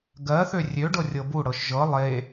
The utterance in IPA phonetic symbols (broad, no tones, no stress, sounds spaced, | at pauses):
ɡ ɜ θ ø rʲ ø ɖ ɤ rʲ ɤ b u ɽ ɤ ʃ ʒ ɤ lˠ e